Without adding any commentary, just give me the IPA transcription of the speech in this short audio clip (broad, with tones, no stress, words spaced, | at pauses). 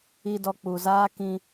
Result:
i˨dɔ˨ k͡pu˨zaː˦kĩ˦